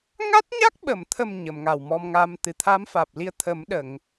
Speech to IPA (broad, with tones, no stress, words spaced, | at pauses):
ŋa˦˥t̚ɲa˦˥k̚ɓə˨˩˨mt̪ʰə˨˩m ɲə˨˩˨mŋa˨˩wmɔ˧mŋa˧m t̪ɨ˨˩t̪ʰaː˧˥mfaː˨˩p̚li˧ə̯ t̪ʰə˨˩˦m ɗə˨˩˨ŋ